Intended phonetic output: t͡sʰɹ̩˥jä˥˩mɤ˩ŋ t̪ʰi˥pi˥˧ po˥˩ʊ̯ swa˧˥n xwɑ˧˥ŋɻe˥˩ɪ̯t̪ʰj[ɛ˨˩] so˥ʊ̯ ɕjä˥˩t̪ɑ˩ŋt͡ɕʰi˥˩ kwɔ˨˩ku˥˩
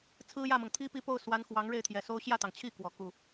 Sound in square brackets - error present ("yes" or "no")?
no